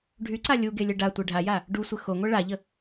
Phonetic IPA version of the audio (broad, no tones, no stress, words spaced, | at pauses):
ɖʱyǀa lʲuɡelʲə ɖatʷe ɖʱaja | ɖusʷə xoŋʷɛ ɭaʎə